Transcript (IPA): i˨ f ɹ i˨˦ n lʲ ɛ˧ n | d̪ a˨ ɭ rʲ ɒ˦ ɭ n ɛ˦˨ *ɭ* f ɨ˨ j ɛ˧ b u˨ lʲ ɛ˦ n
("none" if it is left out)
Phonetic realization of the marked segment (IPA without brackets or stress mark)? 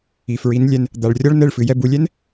ɭ